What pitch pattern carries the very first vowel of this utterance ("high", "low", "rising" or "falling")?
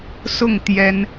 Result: falling